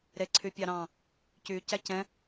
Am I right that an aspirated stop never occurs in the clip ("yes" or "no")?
no